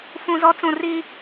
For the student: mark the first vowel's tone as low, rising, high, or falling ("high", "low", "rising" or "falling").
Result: low